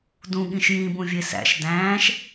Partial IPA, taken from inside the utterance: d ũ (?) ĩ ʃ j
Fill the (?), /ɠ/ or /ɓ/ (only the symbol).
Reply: ɠ